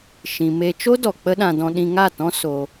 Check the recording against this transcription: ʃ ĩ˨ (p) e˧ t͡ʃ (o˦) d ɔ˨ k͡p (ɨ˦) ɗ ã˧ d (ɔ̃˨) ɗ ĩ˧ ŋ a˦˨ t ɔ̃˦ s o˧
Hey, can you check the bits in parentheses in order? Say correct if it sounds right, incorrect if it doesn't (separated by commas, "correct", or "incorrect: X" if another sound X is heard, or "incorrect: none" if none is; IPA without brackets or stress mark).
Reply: incorrect: m, correct, incorrect: ə˦, incorrect: ɔ̃˧